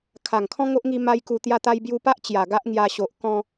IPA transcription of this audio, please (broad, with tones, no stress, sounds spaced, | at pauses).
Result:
kʰ a˨˩ ŋ kʰ ɔ̃˦ ŋ o˦ ʔ ŋ i˧ m a˦ j k u˧ t̪ j a˧ t̪ a˧ j b j u˧ p a˦ ʔ t͡ɕ j a˨˩ ɡ a˦ ʔ ŋ j a˧ ɕ o˨ ʔ k ɔ̃˧